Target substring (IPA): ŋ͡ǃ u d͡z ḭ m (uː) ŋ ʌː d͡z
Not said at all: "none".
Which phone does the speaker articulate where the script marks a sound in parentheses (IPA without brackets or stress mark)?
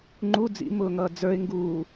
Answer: ʊː